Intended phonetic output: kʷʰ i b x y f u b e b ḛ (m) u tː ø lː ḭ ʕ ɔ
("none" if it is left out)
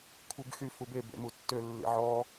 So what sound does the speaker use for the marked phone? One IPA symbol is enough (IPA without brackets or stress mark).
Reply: m